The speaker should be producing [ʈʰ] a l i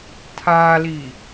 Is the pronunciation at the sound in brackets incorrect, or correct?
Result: incorrect